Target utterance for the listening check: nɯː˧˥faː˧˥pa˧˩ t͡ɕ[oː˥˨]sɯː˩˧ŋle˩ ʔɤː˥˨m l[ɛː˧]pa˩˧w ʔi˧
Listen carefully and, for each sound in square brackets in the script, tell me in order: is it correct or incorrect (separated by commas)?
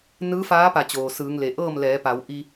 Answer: incorrect, incorrect